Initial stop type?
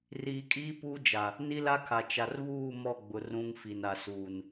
ejective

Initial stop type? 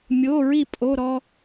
ejective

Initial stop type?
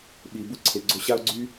implosive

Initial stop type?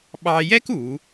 implosive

